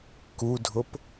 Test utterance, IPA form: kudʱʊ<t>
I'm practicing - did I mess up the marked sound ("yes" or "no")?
yes